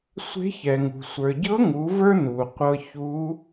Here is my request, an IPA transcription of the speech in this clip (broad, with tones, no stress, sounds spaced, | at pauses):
sʷ e̤˧˥ ç ɛ˩ ŋ ṳ˩ sʷ ə˞˩ ɟ ɤ˧˥ ŋ u˩˧ v ə˞˥ n u˩ qʷ ɤ˧ ç u˧˥